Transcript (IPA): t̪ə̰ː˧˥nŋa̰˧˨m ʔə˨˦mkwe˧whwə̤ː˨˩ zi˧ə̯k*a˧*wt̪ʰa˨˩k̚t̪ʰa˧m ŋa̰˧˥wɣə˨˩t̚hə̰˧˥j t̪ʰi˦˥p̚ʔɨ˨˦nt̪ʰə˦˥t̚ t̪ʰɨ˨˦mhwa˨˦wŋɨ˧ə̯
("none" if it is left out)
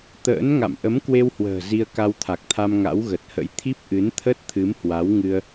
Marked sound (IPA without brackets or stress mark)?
a˧